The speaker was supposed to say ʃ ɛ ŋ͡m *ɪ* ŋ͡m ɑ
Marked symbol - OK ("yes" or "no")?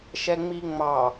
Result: no